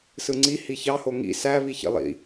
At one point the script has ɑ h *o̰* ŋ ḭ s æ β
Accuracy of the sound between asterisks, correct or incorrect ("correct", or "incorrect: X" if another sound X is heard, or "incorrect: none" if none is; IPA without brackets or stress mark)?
incorrect: o